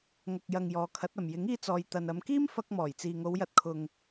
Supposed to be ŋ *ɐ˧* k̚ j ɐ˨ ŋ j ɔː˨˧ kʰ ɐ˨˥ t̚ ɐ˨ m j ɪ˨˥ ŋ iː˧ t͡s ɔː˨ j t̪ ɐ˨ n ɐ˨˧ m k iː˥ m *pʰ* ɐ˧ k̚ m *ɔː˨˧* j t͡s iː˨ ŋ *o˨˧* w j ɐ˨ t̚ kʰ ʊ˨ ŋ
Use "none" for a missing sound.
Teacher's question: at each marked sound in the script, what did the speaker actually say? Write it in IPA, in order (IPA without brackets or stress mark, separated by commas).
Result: ɐ˨, f, ɔː˨˩, o˨˧